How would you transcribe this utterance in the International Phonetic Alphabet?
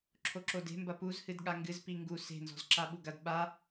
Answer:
ǁʰ o ǁ o d e̤ m b ɐ p u z h ɨ d ɠ a ŋ ɡ ɨ z p i ŋ ɡ u s e̤ n z ɔ̤ z ǁ a ɓ u ɡ ɐ d ɓ a

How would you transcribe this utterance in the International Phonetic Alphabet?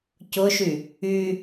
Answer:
c ʊ ʃ y | y

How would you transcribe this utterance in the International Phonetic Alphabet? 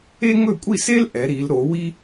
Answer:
e˥ ŋ ɵ˥˨ kʷʼ i˥˨ s e˥ l ʔ ɛ˩˧ ɾ i˩˧ l ɾ o˩˧ w i˥

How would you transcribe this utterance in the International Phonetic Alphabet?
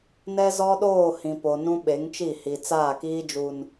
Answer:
n ɛ˦ z ɔ˦ ɗ oː˦˨ h ĩ˨ p o˨ n ũ˦ ɓ e˨˦ ŋ t͡ʃ i˦˨ h i˨ t͡s aː˦˨ k iː˦ d͡ʒ u˨ n

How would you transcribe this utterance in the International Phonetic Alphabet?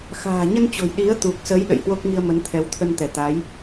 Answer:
x a̤ː˨˩ ɲ ə˧ n t͡ɕ o̤˨˩ j ɗ i˨˦ ə̯ t̪ u˨˩ k̚ s ə˨˦ j ɗ ə̰˧˨ j h w o˦˥ k̚ ŋ i˧ ə̯ m ə˨˦ n t̪ʰ ɛ˨˦ w t̪ʰ ə˧ n t̪ ɛ˧˩ t̪ a˨˦ j

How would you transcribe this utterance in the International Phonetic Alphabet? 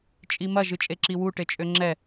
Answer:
t͡ʃʼ i m ɐ ʒ ɨ t͡ʃʼ e ǁ i w u ʈ e t͡ʃʼ ø ŋ͡ǁ ɛ

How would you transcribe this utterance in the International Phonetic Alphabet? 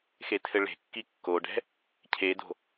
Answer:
x e tʰ ɘ ɭ e̤ kː i kː o ɖ ɛ̤ | cʰ e d o̤

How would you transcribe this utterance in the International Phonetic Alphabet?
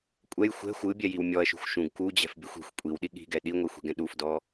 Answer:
kʷʼ ɛ j xʷ ɛ̤ xʷ ɯ bʲ ɛ j i w mʲ ɔ ɐ̯ ʃ ṳ xʷ ʃ ũ ɡ k u d͡ʑ ɛ̤ f bʲ ɯ xʷ i̤ xʷ kʷʼ i w ɗ i ɠ i̤ ɡ ɛ ɗ i ŋʷ ɛ xʷ i̤ ɡ ɛ̃ ɗ u f d ɔ

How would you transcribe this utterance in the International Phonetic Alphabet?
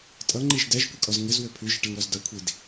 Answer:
tʼ ʌ ŋ͡ǃ i ʒ d ɛ ʒ kʷ ɘ kʼ ɔ z ŋ ɘ z w ɘ pʰ ʉ ʒ ɘ ʈ ɐ ŋ ɾ ɔ z d ʌ kʷʰ i d

